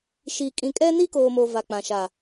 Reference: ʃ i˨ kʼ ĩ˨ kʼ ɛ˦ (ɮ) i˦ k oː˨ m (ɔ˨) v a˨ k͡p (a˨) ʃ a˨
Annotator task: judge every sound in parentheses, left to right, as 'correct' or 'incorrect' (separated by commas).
incorrect, incorrect, incorrect